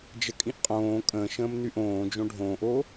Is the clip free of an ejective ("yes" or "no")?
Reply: no